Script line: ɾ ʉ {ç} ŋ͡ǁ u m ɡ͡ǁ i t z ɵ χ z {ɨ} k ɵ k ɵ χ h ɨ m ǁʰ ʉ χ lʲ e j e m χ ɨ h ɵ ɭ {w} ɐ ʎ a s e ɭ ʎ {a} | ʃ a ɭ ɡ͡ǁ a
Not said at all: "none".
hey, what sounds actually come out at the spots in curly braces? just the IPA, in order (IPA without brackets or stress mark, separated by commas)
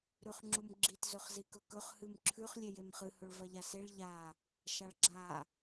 χ, i, v, a